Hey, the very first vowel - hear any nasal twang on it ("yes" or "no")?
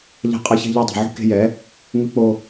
no